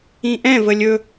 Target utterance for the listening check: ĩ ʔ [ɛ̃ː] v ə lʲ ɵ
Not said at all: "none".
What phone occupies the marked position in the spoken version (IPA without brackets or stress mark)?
ɛ̃